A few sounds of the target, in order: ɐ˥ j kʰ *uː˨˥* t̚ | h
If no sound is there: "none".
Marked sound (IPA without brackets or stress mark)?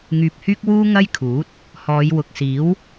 uː˨˥